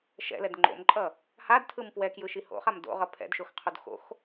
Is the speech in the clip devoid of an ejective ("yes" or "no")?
no